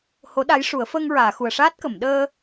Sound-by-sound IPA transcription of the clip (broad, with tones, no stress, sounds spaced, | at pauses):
h o˧˥ ɗ a˧˥ j ʂ u˨˩˦ ə̯ f əː˧ ŋ ɹ aː˨˩˨ x u˨˩ ə̯ ʂ aː˦˥ t̚ k ə˨˩˨ m ɗ əː˧